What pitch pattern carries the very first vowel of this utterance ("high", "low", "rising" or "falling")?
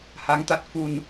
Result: rising